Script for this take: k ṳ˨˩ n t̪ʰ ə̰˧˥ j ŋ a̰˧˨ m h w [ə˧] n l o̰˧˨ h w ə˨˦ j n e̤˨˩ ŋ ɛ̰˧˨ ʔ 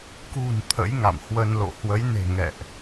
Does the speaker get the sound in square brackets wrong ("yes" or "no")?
no